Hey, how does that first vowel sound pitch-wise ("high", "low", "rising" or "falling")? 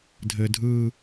low